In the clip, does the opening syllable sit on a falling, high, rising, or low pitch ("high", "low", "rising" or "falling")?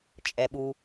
low